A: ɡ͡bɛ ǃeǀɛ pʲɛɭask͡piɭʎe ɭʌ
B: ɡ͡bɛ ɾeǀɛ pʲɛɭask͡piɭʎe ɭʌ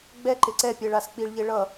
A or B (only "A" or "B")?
A